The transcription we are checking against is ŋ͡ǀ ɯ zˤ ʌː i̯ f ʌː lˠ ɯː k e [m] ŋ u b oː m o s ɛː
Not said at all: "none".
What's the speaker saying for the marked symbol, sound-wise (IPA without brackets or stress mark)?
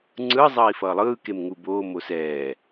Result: m